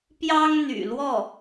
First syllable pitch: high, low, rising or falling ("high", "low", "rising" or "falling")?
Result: high